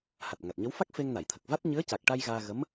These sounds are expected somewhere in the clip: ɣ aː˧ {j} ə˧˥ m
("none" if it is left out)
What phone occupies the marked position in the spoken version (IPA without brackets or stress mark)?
ɣ